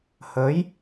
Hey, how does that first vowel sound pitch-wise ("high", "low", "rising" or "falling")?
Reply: rising